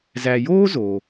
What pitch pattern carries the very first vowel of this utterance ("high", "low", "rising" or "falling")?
low